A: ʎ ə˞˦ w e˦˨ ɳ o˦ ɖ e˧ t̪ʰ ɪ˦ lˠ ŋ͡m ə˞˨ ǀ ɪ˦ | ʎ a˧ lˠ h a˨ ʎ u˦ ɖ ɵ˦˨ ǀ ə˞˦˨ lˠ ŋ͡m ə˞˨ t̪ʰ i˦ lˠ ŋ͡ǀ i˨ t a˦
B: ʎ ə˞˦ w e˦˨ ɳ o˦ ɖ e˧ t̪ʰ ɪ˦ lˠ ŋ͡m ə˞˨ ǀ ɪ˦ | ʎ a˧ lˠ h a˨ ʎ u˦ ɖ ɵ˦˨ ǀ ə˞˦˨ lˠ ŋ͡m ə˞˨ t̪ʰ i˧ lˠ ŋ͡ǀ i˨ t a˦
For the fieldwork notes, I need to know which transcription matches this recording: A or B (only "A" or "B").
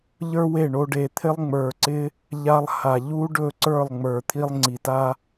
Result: B